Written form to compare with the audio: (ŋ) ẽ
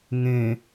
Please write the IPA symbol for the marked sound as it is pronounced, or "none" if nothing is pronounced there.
ŋ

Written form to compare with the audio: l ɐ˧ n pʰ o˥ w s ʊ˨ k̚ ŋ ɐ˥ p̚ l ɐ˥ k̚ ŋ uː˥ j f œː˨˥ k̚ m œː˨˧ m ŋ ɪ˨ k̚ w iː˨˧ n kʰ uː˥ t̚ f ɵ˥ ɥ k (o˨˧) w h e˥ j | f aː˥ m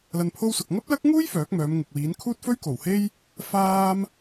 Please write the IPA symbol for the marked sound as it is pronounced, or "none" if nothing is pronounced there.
o˨˩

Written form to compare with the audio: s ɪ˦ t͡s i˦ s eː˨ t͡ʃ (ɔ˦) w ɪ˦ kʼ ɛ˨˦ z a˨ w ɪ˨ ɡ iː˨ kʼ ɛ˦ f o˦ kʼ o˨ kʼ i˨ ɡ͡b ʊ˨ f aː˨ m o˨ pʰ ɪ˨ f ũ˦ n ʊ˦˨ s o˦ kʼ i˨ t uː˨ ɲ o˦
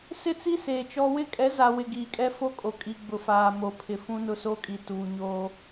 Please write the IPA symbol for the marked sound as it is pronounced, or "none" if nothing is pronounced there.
ɔ˦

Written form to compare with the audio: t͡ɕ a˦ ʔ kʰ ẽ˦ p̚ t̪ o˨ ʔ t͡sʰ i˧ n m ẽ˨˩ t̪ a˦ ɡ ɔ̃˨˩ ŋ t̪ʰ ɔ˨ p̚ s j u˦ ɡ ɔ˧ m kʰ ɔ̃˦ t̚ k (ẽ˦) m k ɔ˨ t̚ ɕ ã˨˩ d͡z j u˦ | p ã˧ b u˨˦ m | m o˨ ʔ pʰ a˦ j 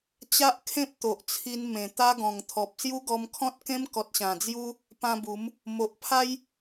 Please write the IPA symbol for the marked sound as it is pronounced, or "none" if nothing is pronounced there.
ẽ˦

